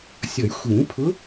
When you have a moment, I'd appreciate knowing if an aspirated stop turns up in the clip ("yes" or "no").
yes